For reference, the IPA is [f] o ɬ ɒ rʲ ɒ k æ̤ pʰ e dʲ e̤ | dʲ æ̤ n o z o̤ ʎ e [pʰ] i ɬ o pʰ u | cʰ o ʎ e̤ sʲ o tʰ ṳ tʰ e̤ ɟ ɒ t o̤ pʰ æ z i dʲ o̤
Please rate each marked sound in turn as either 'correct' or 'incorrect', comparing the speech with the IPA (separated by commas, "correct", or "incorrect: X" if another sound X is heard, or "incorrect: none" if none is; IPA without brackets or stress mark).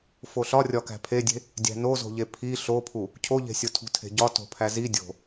correct, correct